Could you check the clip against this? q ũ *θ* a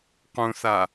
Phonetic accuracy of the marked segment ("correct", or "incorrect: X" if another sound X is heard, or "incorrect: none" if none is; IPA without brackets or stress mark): correct